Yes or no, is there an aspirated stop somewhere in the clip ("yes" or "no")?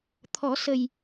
yes